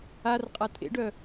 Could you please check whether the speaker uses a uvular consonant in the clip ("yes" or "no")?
yes